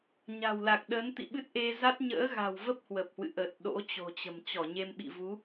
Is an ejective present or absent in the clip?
absent